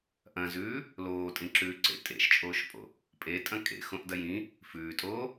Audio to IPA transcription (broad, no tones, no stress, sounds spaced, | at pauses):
ʔ ɐ̃ z ʉː | l oː tʼ ĩ ǁ ʉː ǀ ḛ tʼ ḛ ʃ t͡ʃʼ oː ʃ pʼ o̰ | pʼ e tʼ ɐ̃ kʼ ḛ x õ ʔ d ɐ j ĩ | f ʉː tʼ oː